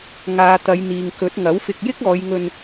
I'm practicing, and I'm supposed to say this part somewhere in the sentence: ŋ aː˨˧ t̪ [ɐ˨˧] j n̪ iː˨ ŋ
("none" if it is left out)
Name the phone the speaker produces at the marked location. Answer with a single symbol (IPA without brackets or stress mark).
ɐ˨˧